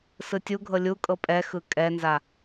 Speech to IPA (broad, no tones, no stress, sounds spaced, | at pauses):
s ɯ tʲ u ɡʱ ɤ lʲ u kʼ ɤ pʼ ɛ x ɯ kʼ ɛ n z a